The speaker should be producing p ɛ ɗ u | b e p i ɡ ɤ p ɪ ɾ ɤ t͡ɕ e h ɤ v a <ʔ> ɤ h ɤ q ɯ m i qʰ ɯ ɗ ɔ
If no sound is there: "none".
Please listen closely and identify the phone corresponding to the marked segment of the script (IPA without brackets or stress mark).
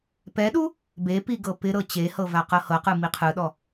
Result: q